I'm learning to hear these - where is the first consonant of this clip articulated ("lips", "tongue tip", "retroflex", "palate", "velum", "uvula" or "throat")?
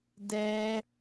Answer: tongue tip